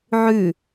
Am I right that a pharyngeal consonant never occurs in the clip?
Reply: no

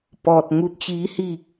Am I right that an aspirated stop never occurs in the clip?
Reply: yes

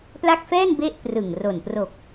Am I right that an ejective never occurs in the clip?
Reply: yes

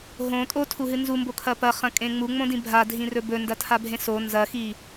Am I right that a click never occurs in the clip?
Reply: yes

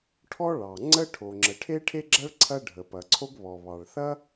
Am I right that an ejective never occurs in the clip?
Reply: yes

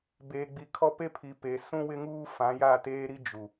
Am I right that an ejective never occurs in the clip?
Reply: yes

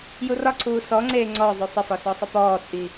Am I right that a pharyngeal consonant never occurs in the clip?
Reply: yes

